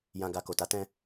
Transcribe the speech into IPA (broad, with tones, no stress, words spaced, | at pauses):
jã˧ɡa˧ko˨ ta˨˦tɛ̃˧